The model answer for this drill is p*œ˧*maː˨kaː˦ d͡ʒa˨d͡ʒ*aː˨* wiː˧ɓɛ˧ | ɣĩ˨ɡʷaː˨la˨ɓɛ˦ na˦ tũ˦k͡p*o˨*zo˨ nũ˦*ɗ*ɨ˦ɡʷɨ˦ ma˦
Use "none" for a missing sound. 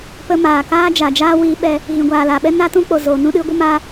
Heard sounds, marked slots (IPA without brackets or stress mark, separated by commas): ə˧, aː˦, o˨, ɗ